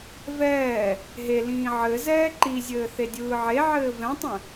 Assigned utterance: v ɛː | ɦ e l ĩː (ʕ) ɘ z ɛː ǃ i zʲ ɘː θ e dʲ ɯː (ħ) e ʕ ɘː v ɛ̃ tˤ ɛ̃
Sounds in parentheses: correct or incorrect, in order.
correct, incorrect: ʕ

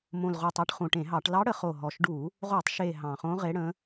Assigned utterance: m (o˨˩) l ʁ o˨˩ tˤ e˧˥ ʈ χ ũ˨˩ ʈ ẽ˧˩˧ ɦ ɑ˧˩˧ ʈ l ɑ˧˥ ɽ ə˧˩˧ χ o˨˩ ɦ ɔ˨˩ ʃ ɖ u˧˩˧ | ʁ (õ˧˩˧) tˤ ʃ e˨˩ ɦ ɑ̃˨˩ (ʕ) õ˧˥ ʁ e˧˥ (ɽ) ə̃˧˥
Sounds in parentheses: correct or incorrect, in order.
incorrect: õ˨˩, incorrect: o˧˩˧, incorrect: χ, correct

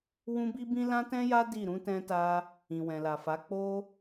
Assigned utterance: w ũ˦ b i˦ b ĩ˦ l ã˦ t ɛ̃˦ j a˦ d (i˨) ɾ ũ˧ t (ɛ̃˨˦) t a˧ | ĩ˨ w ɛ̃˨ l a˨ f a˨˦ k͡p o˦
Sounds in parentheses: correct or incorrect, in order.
incorrect: i˦˨, incorrect: ɛ̃˧

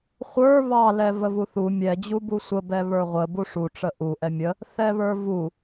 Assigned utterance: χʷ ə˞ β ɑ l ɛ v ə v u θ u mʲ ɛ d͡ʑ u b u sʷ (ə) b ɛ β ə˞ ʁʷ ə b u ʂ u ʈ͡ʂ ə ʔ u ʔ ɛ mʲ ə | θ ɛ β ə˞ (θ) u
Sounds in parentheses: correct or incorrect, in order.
correct, incorrect: v

